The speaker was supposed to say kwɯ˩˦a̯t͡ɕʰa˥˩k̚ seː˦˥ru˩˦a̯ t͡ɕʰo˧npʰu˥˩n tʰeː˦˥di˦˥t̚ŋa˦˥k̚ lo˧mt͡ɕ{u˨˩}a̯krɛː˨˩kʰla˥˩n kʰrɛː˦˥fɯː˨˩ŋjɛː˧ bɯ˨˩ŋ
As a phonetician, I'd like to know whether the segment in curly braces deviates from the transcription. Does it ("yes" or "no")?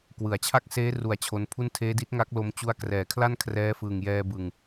yes